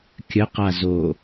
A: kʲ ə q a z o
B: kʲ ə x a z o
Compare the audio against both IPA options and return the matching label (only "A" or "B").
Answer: A